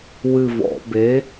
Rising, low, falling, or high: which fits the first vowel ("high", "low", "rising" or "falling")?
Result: falling